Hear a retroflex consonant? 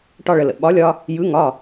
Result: yes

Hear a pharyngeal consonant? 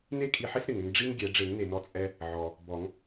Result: yes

